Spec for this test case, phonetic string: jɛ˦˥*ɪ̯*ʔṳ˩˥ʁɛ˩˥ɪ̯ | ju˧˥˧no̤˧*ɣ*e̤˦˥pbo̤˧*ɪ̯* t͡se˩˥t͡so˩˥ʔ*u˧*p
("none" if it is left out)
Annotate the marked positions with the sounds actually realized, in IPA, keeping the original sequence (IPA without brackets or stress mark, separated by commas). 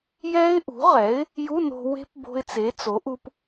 ɪ̯, w, ɪ̯, u˧